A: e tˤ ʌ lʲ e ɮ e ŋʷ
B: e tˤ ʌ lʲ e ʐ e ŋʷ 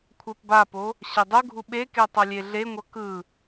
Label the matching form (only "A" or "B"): A